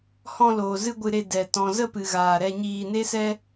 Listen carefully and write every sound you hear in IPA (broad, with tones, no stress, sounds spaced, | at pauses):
h ɔ̃˧ l oː˨ z ɨ˧ ɡʷ ɨ˧ ɾ e˧ d ɛ˨ t ɔ̃˨ z ə˦˨ p ɨ˨ ɣ aː˨ ɾ ɛ˧ ɲ iː˧ n e˦ s ɛ˦